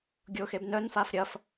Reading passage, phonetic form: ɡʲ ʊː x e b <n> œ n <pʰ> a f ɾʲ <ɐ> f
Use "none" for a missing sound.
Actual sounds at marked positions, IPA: n, f, ɐ

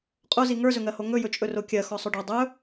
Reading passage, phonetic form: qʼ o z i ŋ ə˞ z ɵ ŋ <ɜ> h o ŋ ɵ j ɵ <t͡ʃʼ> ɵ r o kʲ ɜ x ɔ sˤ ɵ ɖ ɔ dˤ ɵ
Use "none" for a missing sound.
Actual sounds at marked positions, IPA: ɜ, t͡ʃʼ

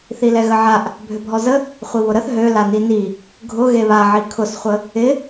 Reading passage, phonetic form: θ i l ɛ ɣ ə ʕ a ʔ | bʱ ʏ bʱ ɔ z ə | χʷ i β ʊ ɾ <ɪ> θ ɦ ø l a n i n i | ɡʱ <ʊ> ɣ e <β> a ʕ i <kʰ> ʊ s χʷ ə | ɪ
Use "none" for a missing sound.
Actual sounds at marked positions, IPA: ə, ʊ, β, kʰ

